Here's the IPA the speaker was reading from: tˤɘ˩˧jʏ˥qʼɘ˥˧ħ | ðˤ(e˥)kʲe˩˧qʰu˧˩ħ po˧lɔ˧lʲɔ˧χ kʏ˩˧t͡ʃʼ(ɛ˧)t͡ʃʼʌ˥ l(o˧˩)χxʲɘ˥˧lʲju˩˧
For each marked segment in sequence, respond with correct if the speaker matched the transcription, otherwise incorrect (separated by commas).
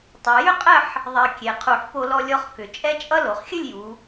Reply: incorrect, incorrect, incorrect